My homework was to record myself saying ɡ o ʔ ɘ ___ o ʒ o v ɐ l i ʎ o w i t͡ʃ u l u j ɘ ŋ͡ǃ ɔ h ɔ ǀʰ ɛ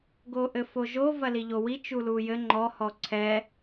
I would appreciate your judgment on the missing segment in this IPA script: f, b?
f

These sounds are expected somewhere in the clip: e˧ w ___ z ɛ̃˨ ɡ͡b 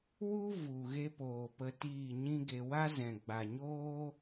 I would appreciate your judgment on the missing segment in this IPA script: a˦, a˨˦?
a˦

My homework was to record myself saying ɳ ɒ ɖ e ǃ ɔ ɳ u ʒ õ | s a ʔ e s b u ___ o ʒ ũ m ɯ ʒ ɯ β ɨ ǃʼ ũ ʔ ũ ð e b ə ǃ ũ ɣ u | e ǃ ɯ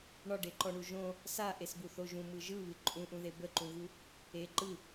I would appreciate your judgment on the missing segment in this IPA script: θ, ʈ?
θ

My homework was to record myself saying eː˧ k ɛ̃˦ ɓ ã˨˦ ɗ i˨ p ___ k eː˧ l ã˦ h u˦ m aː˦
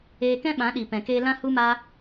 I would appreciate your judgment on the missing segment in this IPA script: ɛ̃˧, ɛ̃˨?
ɛ̃˨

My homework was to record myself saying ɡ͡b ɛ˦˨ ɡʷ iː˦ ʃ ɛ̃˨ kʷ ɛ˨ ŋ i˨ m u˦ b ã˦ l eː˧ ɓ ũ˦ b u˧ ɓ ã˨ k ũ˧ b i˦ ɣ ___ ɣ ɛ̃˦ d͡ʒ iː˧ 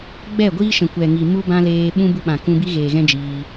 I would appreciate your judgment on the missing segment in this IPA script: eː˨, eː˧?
eː˨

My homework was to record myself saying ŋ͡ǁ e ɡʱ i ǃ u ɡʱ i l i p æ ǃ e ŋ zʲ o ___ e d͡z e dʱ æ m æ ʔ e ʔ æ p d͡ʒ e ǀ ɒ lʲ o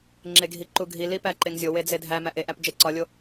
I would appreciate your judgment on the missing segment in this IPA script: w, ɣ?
w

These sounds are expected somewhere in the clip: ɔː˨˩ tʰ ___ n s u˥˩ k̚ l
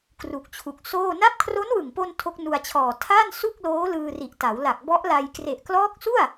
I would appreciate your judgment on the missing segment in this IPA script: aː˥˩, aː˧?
aː˥˩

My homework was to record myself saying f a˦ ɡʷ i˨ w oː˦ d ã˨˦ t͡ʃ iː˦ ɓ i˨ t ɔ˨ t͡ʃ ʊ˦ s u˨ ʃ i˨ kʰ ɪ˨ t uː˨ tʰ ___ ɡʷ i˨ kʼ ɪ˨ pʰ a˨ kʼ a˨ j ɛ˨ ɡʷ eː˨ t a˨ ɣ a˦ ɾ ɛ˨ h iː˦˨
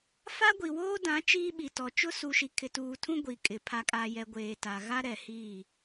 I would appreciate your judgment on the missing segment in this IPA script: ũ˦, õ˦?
ũ˦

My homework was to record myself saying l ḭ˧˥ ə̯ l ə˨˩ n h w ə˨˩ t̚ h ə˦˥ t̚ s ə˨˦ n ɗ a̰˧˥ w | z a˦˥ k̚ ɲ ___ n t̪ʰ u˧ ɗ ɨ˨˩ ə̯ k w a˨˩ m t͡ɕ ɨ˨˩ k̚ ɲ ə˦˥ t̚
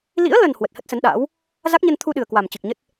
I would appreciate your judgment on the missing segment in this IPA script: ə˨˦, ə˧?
ə˧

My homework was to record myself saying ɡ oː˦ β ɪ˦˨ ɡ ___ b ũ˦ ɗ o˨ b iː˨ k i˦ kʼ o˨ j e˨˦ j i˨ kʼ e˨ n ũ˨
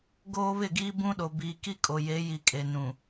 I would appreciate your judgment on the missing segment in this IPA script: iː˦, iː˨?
iː˦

